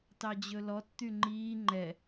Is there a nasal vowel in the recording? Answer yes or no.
no